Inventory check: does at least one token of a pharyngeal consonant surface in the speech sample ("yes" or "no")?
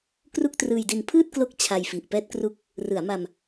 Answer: no